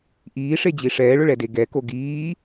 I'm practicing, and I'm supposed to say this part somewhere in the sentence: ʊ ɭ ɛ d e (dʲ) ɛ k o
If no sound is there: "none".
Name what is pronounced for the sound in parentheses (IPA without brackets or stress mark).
ɡ